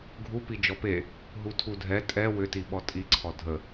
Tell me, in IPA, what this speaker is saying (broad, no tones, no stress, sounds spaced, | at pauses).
ɡʱ u p i d͡ʒ ɔ p e | ɦ u tʰ u dʱ ɛ tʼ ɛ w ʏ t i ɓ ɔ tʼ i ǀʰ ɔ dʱ ə